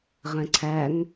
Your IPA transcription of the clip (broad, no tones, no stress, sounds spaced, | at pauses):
ʁ ɛ̃ ǀʰ æ ŋ